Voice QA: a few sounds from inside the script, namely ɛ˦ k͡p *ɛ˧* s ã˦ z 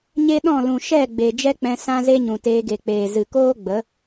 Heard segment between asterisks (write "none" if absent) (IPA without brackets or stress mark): ɛ̃˧